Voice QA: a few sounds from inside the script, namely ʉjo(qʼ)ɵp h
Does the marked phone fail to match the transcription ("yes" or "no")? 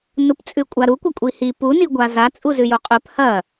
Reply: no